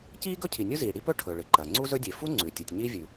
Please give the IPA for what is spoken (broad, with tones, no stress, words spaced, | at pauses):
ciː˥ɡɵ˥cʰi˩ nʲu˥ziː˩ɽi˥ pɵ˥ ʈʰɵ˩ɭɨ˩ǃɐ˩ ŋ͡ǀu˥zɵ˥dʲe˩ fu˥ŋ͡ǀʉ˩ tʲɨ˩tʲɲiː˥vʲʉ˩